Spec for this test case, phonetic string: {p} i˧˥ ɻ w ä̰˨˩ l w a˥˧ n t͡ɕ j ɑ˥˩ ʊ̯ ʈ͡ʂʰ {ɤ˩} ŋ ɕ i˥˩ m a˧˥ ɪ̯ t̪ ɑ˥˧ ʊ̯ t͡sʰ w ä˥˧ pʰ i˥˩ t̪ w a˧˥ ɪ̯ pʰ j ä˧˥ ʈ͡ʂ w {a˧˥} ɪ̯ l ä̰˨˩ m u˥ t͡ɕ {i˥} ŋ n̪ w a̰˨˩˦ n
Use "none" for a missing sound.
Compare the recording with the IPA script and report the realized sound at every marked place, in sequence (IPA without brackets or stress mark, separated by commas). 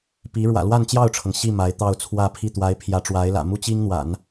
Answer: p, ɤ˩, a˧˥, i˥